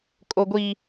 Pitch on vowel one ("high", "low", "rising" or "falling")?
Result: high